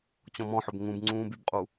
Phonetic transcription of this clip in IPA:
t͡ɕ ɔ̃ m ɔ̃ ħ ɵ b ŋ ũ b ŋ͡ǀ ũː b y b qʼ u

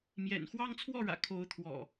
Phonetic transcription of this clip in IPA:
m j ɛ̰˨˩ n x w ɑ˦ ŋ t͡sʰ w ɔ˥˨ ɻ ä̰˨˩ kʰ o˨˦ ʊ̯ t̪ʰ w ɔ̰˨˩

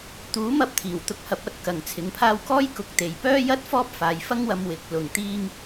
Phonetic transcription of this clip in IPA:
t̪ uː˨˥ m ɐ˧ p̚ t̪ʰ iː˨˩ w t̪ ʊ˨˥ k̚ h ɐ˨˥ p̚ ɐ˧ t̚ k ɐ˨ ŋ t͡sʰ ɪ˨˥ ŋ pʰ aː˥ w k ɔː˥ j k ʊ˨ k̚ t̪ e˨ j p œː˥ j ɐ˥ t̚ f ɔː˥ p̚ f aː˨˧ j f ɐ˥ ŋ w ɐ˧ m w ɪ˨˥ k̚ l ʊ˨ ŋ t̪ iː˥ ŋ

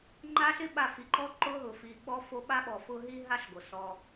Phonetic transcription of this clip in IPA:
ŋ͡ǃ a˦ ɬ ɪ˦ ɓ a˨ f i˨ ǃ ɔ˦ ǃ ʊ˦ ɦ ʊ˨ f i˨ ɓ ɔ˦ f o˦ ɓ a˦ ɓ ɔ˨ f ʊ˦ ɦ i˦ ɦ a˦ ɬ ɡ o˨ s ɔ˦

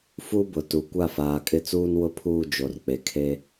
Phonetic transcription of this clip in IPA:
f u˦ b ʊ˨ t u˨ kʷ a˦˨ f aː˨ kʼ ɪ˦˨ t͡s uː˦ n w ʊ˦ pʰ uː˦˨ d͡ʒ o˨ r k͡p e˨ kʰ e˦

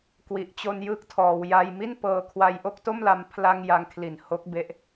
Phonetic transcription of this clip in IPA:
k w i˨˩ ʔ t͡ɕ o˧ n j ɯ˦˥ k̚ tʰ ɔː˩˦ w j a˧ j m i˥˩ n p ɤː˧ kʰ w a˧ j ʔ o˥˩ k̚ t o˥˩ m l a˧ m pʰ l a˧ ŋ j a˧ ŋ kʰ l i˨˩ n h o˦˥ k̚ b e˦˥ ʔ

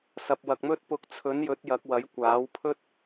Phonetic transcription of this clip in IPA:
s ɐ˨ p̚ w ɐ˨ k̚ m ɵ˥ t̚ p ʊ˨˥ k̚ t͡sʰ ɵ˨˥ n j ɵ˨˥ t̚ j ɐ˨˥ k̚ w ɐ˨˥ j kʷ aː˨˥ w pʰ ɵ˥ t̚

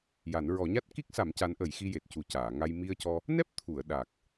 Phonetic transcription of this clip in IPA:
j a˨˩˦ n ɹ ɔ˨˩˦ ɲ a˦˥ t̚ k i˦˥ k̚ s a˨˩˦ m c a˧˥ n ʔ ə˨˩˦ j x i˧ j e˨˩ t̚ c u˨˩ c aː˨˩˨ ŋ a˧ j m i˧ ə̯ c ɔ˧ | n ɛ˦˥ p̚ t̪ʰ u˨˩˨ ə̯ ɗ a˨˩ k̚

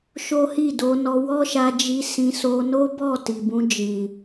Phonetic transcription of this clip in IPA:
ʃ o˦ h i˦˨ d o˧ n ɔ˧ w ɔ˦ ʃ a˧ d͡ʒ i˧ s ĩ˧ s o˧ n o˦ b ɔ˦˨ t i˨ b ũ˧ d͡ʒ ĩ˨

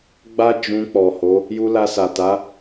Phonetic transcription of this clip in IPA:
ɡ͡b a˦ d͡ʒ ũ˧ k͡p ɔ˨ h o˨˦ | j u˧ l a˧ s a˨ t a˨˦

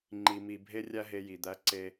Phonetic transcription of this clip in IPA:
ŋ͡ǃ i˧ m i˧ bʱ e˥ rʲ æ˥ ɦ e˧ j i˩ d̪ æ˧ ǀ e˧

